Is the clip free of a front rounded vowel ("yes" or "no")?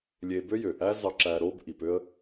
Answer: no